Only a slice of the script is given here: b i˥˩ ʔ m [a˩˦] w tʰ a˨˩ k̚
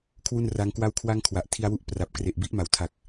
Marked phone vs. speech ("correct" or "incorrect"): correct